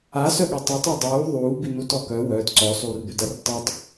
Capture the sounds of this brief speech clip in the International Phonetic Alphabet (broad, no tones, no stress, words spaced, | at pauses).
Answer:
asœɠø tˤøtˤø dˤuː ðˤuːbinutɔ kœ wœːt ǀɔsˤuːrbødar tˤøtˤ